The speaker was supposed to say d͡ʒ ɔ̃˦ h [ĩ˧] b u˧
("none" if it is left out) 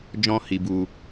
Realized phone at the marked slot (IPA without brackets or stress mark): i˧